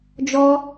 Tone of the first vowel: high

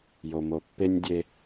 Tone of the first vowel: low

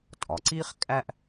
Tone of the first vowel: low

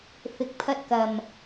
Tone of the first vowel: low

